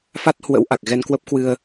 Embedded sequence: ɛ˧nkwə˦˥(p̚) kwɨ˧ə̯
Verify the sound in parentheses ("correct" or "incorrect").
correct